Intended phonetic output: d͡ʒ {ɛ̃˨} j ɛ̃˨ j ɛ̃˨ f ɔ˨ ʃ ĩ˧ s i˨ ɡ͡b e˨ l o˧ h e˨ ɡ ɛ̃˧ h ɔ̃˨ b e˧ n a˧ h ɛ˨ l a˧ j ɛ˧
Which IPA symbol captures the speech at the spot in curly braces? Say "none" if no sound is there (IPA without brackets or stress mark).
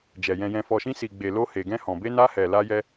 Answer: ɛ˨